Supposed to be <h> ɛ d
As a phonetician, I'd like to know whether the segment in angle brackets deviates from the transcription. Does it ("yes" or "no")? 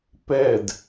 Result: yes